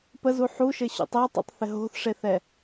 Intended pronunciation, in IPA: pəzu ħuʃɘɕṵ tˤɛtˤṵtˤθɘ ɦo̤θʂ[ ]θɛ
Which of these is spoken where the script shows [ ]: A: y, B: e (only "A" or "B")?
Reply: B